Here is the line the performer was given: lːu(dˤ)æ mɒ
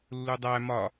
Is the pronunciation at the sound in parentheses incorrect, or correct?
correct